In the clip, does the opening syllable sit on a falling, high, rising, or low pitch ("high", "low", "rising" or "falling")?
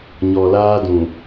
low